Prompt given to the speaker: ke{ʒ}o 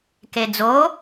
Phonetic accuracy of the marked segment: incorrect: d͡z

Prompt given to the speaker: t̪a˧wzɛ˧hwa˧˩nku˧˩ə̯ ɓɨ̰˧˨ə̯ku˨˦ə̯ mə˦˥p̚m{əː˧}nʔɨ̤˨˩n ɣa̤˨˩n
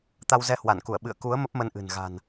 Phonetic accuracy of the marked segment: incorrect: ə˧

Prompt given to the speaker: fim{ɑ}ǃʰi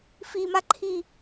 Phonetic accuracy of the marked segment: incorrect: a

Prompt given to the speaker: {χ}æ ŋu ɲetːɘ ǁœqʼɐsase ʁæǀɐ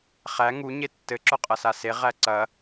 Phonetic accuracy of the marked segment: correct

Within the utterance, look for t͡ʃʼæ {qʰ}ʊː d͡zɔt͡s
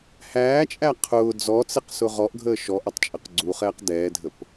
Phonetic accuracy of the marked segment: correct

